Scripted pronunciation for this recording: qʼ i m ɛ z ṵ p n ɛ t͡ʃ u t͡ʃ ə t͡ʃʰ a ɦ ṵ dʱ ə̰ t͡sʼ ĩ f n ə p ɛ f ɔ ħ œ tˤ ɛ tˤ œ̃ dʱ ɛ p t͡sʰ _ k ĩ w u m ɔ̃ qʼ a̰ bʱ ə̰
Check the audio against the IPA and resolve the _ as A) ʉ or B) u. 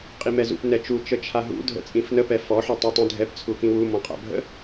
B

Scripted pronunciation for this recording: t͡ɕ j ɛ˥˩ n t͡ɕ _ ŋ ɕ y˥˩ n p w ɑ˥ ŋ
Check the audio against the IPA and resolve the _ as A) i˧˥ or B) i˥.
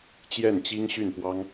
B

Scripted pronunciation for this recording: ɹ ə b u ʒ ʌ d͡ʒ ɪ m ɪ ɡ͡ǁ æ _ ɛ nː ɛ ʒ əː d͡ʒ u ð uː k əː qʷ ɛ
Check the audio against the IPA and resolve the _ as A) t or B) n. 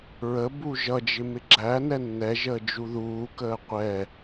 B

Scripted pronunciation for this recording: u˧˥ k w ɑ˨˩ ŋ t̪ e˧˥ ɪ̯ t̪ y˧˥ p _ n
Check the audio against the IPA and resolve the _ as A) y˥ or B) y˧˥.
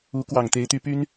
A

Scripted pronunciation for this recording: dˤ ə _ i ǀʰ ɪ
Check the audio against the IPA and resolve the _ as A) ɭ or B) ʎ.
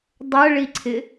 A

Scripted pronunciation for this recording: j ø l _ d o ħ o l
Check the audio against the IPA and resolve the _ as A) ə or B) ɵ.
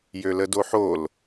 A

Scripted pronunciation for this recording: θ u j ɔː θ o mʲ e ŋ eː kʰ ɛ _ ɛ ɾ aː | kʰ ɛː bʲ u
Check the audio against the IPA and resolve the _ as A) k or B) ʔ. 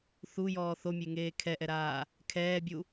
B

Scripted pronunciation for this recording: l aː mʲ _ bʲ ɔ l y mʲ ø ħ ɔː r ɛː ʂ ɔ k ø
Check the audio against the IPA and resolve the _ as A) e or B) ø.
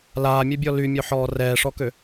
A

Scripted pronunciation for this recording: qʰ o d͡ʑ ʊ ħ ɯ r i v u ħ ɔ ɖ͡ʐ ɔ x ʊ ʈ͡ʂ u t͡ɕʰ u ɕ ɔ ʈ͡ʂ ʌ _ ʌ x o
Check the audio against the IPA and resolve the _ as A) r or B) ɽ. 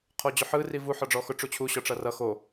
A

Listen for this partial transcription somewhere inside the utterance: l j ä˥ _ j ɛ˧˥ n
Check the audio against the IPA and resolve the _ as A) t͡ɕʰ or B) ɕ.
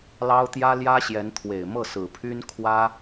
B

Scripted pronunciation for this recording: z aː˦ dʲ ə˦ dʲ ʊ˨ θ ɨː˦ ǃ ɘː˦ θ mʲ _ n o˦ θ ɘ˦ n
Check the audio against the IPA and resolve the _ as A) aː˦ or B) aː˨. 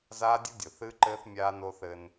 A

